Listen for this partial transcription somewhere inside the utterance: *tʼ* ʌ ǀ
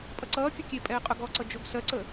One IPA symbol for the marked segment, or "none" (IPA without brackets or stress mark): pʼ